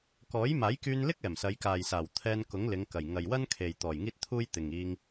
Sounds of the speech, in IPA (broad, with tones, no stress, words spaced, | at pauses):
kɔː˨˥jmaː˨˥jkyː˧nlɪ˥k̚ ɛː˨˩msɐ˨˧jkaː˨jsaː˨˩w t̪ʰɛː˧nkʊ˨˥ŋlɪ˨˧ŋkɐ˨˩j ŋɐ˨jwɐ˥nkʰe˨j t̪ɔː˨˩jŋiː˥t̚t̪ʰuː˥j t̪ɪ˨ŋiː˧ŋ